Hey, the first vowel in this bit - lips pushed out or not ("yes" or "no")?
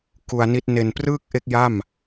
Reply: yes